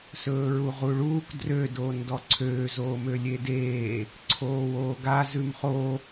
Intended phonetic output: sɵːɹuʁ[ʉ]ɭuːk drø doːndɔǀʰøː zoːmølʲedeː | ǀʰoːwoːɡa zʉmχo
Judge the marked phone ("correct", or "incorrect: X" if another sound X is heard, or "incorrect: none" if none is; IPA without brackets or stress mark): incorrect: u